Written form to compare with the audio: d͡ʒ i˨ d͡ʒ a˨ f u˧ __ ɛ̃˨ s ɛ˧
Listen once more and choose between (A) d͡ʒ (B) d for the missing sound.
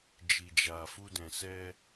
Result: B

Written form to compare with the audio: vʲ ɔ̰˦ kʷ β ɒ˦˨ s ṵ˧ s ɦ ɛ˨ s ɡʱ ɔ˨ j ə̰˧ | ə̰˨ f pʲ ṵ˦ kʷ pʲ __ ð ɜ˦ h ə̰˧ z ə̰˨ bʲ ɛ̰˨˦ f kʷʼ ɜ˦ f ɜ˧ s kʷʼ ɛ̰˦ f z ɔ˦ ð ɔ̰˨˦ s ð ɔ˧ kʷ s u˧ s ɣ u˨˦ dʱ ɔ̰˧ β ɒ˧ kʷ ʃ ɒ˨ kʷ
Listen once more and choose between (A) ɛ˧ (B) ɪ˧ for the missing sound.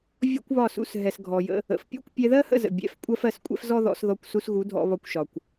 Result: A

